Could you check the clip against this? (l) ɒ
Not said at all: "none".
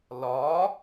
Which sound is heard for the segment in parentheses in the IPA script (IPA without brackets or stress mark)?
l